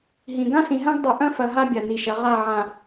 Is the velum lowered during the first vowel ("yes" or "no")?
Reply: yes